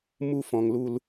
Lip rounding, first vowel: rounded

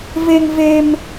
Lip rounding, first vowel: unrounded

